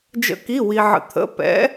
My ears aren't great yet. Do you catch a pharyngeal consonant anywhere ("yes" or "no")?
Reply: yes